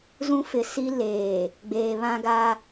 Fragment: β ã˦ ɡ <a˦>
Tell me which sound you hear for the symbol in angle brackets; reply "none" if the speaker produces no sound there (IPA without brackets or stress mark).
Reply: a˦